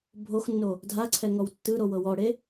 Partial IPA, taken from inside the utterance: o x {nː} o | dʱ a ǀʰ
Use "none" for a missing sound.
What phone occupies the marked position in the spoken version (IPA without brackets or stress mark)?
nː